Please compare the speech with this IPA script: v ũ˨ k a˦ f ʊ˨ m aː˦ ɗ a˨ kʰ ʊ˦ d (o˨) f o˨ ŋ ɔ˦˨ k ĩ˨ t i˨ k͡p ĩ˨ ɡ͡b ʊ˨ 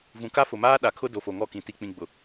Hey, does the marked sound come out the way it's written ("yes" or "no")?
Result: yes